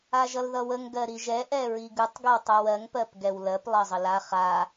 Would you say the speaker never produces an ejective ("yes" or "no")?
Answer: yes